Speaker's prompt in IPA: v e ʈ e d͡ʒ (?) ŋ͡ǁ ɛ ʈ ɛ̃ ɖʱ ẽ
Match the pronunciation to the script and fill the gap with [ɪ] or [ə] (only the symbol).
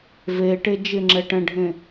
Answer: ɪ